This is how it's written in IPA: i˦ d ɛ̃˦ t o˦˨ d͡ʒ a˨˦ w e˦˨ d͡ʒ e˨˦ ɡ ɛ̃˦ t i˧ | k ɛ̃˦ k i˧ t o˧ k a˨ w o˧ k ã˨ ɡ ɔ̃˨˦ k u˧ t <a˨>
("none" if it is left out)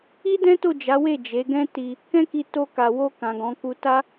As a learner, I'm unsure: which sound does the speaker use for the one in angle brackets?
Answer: a˦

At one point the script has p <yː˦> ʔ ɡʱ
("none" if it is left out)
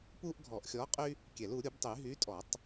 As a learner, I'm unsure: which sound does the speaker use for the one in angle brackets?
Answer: uː˦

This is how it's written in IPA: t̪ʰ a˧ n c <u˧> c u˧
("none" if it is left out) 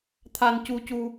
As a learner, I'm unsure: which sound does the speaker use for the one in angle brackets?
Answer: u˧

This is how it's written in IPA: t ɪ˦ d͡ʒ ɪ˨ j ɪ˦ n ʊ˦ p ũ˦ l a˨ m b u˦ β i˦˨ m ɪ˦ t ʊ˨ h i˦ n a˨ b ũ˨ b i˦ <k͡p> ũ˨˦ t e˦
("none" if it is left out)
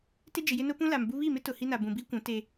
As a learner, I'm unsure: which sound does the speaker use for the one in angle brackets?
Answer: kʷ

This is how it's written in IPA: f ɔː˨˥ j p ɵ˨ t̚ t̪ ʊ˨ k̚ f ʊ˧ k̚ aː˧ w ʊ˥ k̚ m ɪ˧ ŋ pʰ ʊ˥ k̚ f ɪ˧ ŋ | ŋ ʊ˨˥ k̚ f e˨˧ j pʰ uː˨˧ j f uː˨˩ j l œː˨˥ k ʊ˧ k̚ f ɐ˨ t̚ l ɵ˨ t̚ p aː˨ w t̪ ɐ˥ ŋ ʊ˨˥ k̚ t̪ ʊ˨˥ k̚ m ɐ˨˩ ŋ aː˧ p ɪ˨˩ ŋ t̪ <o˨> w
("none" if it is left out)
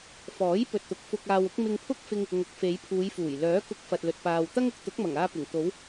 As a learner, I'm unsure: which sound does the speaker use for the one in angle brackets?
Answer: o˨˧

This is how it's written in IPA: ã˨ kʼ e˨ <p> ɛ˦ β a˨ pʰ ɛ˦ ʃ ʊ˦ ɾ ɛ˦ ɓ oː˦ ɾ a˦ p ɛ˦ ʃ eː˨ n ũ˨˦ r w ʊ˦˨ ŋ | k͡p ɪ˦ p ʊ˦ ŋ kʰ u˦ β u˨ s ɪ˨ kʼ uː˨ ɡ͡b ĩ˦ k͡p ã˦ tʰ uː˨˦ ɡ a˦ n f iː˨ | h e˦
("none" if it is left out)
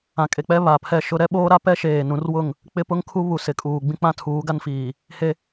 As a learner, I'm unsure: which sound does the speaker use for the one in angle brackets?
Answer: k͡p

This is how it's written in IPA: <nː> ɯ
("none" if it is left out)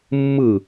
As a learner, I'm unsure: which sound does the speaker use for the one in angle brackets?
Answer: mː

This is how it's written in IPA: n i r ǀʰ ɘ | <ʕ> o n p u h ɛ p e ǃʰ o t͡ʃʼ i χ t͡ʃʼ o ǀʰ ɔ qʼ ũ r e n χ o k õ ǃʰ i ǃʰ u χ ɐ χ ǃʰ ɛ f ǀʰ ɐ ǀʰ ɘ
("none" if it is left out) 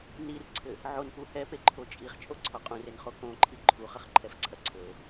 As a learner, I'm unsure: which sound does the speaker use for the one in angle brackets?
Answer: ʕ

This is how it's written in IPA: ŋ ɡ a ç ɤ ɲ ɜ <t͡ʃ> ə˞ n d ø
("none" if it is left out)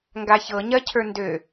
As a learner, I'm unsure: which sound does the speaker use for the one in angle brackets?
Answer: cʰ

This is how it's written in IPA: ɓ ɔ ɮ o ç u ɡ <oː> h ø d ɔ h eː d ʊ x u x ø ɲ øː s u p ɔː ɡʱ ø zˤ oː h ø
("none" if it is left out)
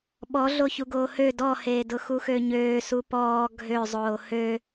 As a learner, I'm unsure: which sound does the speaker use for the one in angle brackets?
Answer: oː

